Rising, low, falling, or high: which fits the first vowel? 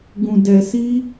low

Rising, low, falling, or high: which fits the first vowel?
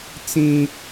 high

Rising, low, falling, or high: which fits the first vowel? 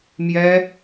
high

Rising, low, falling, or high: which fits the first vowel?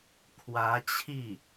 rising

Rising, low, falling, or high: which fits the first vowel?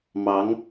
rising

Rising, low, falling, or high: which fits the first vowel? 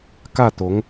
falling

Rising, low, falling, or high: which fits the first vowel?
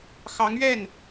rising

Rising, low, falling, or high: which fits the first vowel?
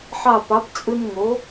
falling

